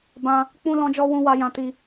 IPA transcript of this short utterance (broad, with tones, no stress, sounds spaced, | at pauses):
b ã˦ | k͡p ũ˦ l ɔ̃˦ d͡ʒ ɔ˦ w ũ˦ w a˦ j ã˦ t i˦